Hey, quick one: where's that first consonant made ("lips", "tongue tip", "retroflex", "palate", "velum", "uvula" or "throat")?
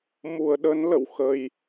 lips